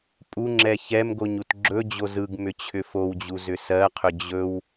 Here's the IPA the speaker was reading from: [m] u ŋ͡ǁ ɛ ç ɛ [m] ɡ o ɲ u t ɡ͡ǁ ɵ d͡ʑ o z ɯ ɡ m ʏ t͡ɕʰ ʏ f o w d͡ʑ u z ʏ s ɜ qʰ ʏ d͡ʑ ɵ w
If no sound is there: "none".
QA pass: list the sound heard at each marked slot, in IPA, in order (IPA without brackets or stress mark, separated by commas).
pʼ, m